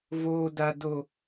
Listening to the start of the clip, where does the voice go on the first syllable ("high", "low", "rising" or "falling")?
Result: high